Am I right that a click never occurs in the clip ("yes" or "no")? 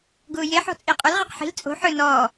yes